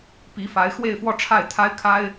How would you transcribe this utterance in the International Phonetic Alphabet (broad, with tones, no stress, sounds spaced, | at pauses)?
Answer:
p i˧˥ f a˧˥ ɪ̯ x w e˥˧ ɪ̯ f w ɔ˥˧ ʈ͡ʂʰ a˥˩ ɪ̯ t̪ʰ a˥ ɪ̯ kʰ a˥ ɪ̯